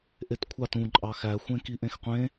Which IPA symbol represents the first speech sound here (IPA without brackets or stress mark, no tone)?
ʔ